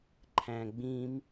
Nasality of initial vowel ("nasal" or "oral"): nasal